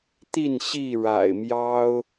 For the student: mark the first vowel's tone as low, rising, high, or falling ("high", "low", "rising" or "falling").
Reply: falling